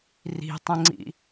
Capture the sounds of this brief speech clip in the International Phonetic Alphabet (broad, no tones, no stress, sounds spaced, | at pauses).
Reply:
r i̤ tˤ ə̃ ŋ͡ǀ ḭ